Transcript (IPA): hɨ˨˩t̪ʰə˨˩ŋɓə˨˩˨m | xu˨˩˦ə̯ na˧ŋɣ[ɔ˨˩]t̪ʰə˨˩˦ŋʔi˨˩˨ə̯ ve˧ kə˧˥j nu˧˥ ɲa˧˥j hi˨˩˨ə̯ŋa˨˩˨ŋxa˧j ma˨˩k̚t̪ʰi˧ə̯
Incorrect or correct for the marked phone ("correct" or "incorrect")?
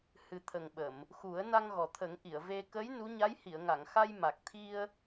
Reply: correct